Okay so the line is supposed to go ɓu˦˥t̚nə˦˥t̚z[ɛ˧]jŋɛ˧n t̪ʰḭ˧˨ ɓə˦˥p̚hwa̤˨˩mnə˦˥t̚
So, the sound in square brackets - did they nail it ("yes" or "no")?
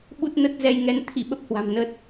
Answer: yes